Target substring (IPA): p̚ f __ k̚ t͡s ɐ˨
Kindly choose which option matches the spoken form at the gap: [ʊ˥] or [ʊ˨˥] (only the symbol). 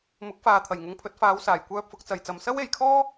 ʊ˨˥